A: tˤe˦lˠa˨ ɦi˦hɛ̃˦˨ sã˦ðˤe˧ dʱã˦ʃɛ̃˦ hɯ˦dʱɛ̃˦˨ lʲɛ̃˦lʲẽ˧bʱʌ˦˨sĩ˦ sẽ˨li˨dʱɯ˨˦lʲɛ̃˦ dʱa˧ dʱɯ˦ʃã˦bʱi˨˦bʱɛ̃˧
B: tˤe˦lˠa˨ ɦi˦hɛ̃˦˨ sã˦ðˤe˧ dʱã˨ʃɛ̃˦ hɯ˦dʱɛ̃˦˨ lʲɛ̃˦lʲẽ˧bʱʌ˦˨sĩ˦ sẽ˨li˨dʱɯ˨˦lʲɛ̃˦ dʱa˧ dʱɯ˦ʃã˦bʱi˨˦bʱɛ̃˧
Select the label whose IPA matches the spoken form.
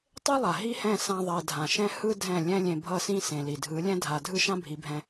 B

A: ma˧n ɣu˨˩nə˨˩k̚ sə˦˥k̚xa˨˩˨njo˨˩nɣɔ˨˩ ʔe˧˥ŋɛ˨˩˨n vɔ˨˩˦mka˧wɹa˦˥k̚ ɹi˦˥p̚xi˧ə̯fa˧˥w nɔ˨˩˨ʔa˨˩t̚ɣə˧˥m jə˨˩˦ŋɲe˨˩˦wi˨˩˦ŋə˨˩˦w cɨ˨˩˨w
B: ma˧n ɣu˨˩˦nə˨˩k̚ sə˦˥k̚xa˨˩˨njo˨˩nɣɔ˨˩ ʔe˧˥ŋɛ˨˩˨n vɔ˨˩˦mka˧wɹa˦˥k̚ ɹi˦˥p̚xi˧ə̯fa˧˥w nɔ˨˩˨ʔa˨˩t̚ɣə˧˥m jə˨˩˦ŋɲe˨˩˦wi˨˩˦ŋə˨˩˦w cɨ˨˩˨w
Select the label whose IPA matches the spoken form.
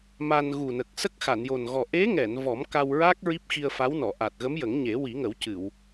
A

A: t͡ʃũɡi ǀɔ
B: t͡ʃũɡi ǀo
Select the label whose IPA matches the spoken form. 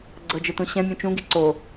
B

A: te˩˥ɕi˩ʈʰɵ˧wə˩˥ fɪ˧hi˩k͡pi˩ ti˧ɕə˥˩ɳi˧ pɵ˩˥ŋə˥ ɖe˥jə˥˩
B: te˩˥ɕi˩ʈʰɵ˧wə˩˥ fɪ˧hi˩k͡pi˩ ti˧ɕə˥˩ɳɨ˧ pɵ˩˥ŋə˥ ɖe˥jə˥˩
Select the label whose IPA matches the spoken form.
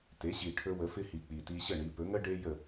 A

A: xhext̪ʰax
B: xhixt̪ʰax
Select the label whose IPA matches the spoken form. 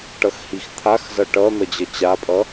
B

